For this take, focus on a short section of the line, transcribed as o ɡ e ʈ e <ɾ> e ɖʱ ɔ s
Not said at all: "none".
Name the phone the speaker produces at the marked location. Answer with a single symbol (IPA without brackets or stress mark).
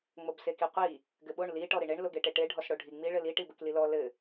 ʈ